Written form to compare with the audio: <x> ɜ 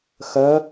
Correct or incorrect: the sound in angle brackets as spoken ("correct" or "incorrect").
correct